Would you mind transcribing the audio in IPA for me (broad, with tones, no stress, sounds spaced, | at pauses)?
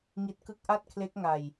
ŋ i˦˥ t̚ k ɯ˦˥ k̚ ʔ a˥˩ t̚ kʰ l e˦˥ k̚ ŋ a˧ j